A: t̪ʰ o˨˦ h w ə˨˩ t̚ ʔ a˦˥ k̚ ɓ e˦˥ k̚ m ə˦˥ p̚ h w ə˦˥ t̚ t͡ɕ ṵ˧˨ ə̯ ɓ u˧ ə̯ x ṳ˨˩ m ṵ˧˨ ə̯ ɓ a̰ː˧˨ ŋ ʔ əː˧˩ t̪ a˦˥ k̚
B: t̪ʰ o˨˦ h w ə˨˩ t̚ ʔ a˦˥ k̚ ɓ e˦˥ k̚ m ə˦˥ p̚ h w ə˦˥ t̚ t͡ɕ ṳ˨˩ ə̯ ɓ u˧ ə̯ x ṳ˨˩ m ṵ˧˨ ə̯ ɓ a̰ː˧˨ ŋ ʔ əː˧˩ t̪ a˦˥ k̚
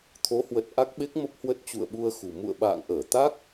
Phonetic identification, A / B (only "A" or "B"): A